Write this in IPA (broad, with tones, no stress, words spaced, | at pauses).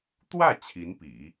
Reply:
t̪wä˥˩ t͡ɕʰi˧˥npḭ˨˩˦